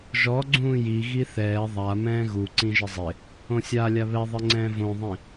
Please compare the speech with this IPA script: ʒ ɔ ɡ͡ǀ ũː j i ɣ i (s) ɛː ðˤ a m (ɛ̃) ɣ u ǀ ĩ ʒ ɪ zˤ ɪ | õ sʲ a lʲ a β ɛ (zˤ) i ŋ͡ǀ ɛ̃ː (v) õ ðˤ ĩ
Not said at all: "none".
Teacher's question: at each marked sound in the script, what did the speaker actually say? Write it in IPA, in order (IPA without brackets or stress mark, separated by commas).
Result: θ, ɛ̃ː, ðˤ, v